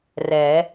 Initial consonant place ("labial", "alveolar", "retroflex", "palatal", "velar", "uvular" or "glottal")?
alveolar